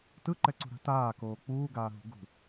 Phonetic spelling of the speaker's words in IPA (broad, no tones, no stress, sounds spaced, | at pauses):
t ɯ ǃ ɛ ǀ ṳ ɾ a̤ t aː k oː k͡p uː ɡ aː ɦ ṳ ɡ ṳ